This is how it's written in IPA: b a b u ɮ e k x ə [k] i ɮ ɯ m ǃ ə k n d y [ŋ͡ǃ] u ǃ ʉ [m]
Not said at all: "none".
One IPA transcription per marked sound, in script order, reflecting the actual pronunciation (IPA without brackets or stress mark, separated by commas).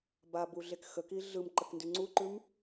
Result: k, ŋ͡ǀ, m